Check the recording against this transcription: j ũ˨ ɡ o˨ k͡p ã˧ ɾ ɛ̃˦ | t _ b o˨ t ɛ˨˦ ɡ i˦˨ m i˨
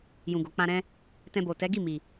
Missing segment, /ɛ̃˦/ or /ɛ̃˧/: ɛ̃˧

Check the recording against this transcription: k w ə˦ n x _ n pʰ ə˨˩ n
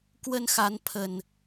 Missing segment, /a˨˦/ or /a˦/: a˨˦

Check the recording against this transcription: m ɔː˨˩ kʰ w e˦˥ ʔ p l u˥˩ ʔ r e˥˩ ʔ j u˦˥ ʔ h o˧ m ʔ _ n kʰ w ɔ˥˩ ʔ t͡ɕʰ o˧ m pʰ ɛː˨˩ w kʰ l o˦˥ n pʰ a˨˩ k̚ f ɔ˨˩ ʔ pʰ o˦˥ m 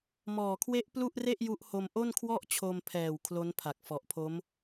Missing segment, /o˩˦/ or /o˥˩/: o˥˩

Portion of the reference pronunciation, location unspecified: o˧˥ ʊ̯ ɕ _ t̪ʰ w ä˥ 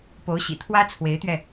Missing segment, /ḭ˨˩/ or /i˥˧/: ḭ˨˩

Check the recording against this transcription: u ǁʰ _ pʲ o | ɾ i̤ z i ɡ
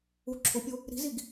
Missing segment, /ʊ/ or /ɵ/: ʊ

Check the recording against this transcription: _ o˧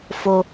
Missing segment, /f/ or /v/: f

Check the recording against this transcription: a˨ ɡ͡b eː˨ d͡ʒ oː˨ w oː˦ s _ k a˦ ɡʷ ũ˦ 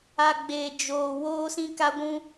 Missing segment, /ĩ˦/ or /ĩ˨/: ĩ˦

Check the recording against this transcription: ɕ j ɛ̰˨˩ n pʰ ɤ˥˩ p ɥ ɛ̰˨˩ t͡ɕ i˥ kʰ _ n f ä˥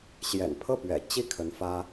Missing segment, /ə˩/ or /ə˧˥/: ə˧˥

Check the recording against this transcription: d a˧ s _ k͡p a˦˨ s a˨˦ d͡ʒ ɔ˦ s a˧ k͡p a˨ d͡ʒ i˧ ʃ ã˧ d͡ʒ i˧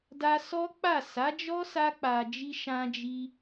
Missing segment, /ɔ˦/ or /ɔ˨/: ɔ˦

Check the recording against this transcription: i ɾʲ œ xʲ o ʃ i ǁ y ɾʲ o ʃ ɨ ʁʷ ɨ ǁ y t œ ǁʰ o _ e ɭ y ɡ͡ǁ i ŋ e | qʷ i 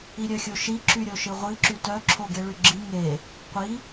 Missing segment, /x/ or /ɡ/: ɡ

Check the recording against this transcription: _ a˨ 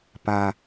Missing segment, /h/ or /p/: p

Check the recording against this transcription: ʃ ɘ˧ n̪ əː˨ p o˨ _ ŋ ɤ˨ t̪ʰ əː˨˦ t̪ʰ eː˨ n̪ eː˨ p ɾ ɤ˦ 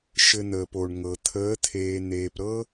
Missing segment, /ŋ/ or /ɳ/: ɳ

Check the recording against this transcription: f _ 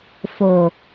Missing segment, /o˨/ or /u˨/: o˨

